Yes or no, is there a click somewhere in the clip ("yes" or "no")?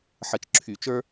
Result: yes